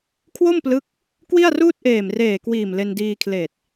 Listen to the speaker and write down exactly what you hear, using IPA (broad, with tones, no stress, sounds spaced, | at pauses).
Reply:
kʰ w o˥˩ m p l ɯ˦˥ k̚ | k w i˥˩ a̯ r uː˥˩ t̚ ʔ eː˨˩ m r eː˨˩ k w iː˨˩ m l e˧ n d iː˧ kʰ l eː˨˩ t̚